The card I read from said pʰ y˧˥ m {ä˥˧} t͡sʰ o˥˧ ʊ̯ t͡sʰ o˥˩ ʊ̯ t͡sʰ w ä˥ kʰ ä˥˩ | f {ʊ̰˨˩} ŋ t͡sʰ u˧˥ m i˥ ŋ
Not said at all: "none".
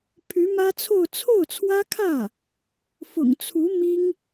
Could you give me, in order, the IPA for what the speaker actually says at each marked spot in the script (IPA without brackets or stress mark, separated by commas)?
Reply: ä˥, ʊ̰˨˩